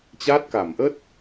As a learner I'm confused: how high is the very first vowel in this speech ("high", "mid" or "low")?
low